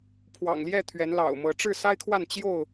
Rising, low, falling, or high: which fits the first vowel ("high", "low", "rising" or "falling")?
low